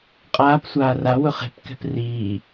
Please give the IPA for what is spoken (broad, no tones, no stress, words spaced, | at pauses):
qʼaːpsʷaː rawʊ χe̤pkɛ̤p riː